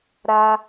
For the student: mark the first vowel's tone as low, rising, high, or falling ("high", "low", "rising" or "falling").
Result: high